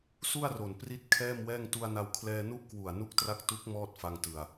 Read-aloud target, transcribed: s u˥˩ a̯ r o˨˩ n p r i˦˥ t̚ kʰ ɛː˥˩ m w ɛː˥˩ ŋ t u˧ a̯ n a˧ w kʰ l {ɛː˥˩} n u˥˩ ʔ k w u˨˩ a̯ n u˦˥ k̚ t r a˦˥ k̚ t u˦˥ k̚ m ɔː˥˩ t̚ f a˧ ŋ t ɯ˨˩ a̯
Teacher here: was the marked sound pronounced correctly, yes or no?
no